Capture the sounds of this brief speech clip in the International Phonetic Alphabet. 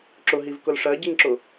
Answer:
ǁ ʊ ɦ i v k ʊ l ʂ ɜ ɟ i ŋ ǁ ʊ

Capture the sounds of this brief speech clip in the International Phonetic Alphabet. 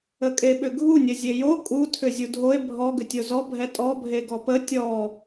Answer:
ə kʼ e ɓ ʏ ɡʱ u nʲ ə zʲ e j o kʼ u tʰ ʏ zʲ u dʱ o e̯ bʱ ɔ ɡ ʏ tʲ o z ɔ bʱ ɛ tʼ ɔ bʱ e ɡ ɔ p ə tʲ ɔ

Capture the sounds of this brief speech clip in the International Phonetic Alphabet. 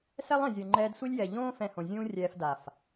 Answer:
s ɛ˦ lˠ ɛ̃˨ zʲ o˨ ŋ͡ǃ ɛː˧ d sʷ i˦ lʲ j ɛ˨ ʎ õː˦ f ɛ̃˧ h õ˨ zʲ ũː˦ rʲ ɛː˧ f d a˨ f

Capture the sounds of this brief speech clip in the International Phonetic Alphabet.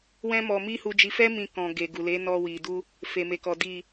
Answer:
w ɛ̃˦ m ɔ˧ m i˦ h u˧ d͡ʒ i˧ f ɛ˦ m ĩ˧ k ɔ̃˨ ɡ e˨ ɡ u˨ l e˨˦ n ɔ˧ w i˨ d u˧ | f e˨ m e˨ k ɔ˨ d i˨

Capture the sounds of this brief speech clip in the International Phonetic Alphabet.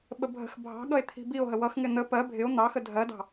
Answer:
ɓ ə bʱ ə̤ x bʱ ɑ̤ ɠ ʌ e̯ t̪ʰ i̤ b i o̯ ɦ ə w ʌ x ŋ ɪ n̪ ə p ɜ bʱ ɪ o̯ n̪ ɑ x ə dʱ ɜ d ɑ̤

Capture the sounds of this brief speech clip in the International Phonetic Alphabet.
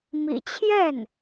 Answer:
m ḭ˨˩ t͡ɕʰ j ɛ˥˩ n

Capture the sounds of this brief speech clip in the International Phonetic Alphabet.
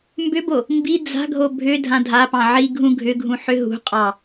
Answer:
m b ʏ b o | m b i d͡z a̤ ɡʱ o bʱ ʏ dʱ ã dʱ a p ɑ̃ ʕ i ɡʱ ũ ɡʱ ʏ ɡʱ ũ ħ ʏ ɦ ṳ qʼ ɑ

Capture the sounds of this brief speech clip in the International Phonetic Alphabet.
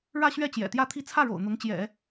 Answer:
ɻ ä˥˧ ɕ ɥ ɛ˥˩ t͡ɕ j ɛ̰˨˩ t̪ j ä˥˧ t̪ʰ i˥˧ t͡sʰ ä˥˩ ɻ o̰˨˩ ʊ̯ n̪ ʊ˧˥ ŋ t͡ɕ j ɛ̰˨˩˦

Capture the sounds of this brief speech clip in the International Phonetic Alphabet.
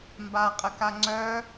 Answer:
m b a qʼ ə k a ŋ͡ǀ œ

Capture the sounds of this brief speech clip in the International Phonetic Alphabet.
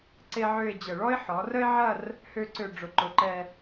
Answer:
ǀ e˥ ʕ ø˥˧ ɪ̯ d͡ʑ ə˧˩ ɭ ɔ˥ ɪ̯ ħ ɔ˩˧ r ə˥ ɪ̯ ʕ ɐ˥˧ r | h ø˥ ǀ ø˥˧ ɖ͡ʐ ʊ˧ ǃ ʊ˧˩ ǃ ɛ˥˧

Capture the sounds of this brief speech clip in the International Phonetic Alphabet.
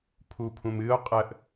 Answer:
pʰ u pʰ ũ m ɨ o̯ qʼ ə ʔ

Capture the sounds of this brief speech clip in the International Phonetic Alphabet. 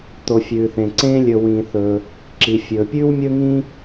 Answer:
t̪ o˩ fʲ ʉː˩ θ ẽ˩ ǀ ẽː˥ lʲ ɵ˧ w ĩː˧ θ ɵː˧ | ǁ i˩ fʲ ɵː˩ pʲ ʉː˥ w mʲ ɵ˥ ŋ ĩː˥

